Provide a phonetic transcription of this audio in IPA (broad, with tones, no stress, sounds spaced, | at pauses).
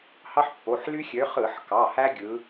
h ɑ˦ ħ pː o˩˧˩ ħ l y˦ xʲ ø˨˦ χ ɯ˧˩˧ ħ k ɑ˩˧˩ h æ˦ ɡʲ ɯ˨˦